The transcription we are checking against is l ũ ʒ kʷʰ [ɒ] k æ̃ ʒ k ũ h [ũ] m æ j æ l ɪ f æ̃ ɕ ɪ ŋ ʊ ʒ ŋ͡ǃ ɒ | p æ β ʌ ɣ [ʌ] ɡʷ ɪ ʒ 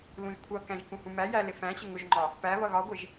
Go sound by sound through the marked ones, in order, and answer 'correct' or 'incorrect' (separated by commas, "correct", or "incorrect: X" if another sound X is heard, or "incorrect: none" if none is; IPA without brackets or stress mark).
incorrect: ʌ, correct, incorrect: ɒ